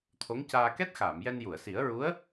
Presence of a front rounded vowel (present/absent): absent